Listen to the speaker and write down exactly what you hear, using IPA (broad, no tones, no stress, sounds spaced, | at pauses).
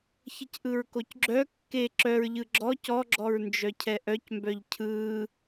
ç ə c ʔ ɯ ɹ k o c ɡ͡ǁ œ kː e ǁ œ ɹ ʎ ɯ ɡ͡ǁ ɔ c ɔ ɡ͡ǁ ɔ ɹ n d͡ʒ œ cʰ ɛ ʔ œ c m b œ ʎ cʰ ɯː